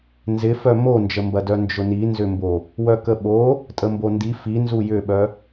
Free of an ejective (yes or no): no